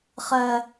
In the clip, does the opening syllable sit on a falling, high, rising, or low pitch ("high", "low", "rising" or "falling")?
high